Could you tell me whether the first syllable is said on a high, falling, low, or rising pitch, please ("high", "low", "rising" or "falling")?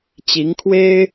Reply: rising